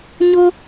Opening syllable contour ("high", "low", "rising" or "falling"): high